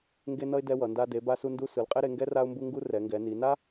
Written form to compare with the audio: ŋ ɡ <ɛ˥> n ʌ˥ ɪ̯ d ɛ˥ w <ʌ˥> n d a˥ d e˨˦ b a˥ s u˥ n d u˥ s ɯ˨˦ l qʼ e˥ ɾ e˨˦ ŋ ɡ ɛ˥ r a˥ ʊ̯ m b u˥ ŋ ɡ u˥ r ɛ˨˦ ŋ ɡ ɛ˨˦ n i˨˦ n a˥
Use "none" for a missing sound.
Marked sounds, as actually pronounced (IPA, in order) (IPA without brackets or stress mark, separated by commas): e˥, ʌ˨˦